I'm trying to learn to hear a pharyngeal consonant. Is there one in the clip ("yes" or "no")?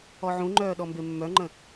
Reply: yes